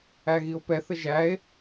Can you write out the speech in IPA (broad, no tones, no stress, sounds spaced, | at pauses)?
æ ɣ i o̯ p ɛ θ ə ʒ æ e̯